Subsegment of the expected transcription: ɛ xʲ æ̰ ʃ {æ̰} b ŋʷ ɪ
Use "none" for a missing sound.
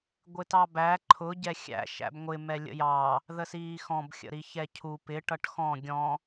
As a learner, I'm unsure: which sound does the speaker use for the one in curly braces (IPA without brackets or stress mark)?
æ̰